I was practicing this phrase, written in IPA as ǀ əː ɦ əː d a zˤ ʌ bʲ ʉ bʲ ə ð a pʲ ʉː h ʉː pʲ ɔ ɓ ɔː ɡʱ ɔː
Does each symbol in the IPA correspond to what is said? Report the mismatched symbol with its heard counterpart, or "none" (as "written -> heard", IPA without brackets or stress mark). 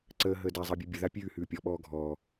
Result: none